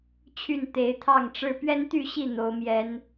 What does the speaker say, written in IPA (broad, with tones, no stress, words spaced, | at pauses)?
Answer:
t͡ɕʰy˥˨n t̪e˨˦ɪ̯t̪ʰɑ˥˨ŋʈ͡ʂɻ̩˦ pɥɛ˦nt̪y˥˨ɕi˥˨ n̪o˨˦ʊ̯mjɛ˨˦n